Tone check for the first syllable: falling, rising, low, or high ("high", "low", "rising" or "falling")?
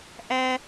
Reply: high